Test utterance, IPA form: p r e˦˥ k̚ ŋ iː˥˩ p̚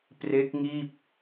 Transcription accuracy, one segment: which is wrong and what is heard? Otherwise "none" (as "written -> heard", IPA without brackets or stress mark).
none